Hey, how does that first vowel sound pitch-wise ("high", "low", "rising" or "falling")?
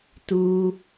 high